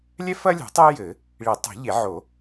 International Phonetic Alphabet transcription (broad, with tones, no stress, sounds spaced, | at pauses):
lʲ ɛ˥ f ɐ˥ lʲ o̤˨˩˦ tˤ e˥ j ɘ˨˩˦ | ɭ i˨˩˦ tˤ o̤˨˩˦ ʎ e˨˩˦ ʕ o˨˩˦